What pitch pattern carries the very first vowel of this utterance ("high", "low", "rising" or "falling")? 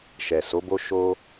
low